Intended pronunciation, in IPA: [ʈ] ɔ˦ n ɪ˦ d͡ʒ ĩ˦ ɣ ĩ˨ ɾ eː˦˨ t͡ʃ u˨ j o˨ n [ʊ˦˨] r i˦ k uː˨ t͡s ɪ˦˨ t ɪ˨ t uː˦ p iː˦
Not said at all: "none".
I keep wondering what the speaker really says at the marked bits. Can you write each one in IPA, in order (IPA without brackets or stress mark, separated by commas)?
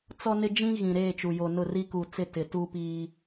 t͡s, ʊ˦˨